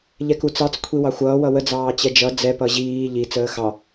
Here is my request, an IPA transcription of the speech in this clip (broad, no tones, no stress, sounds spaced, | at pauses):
ʎ ɛ k u t͡s ɑ t͡s kʷʰ i w ɑ xʷ ʌː w ʌ w ə d͡z ɑː t͡ɕ ɛ d͡ʒ ʌ d͡z ɛ p ʌ ʑ iː ʎ i t͡s əː x ɑ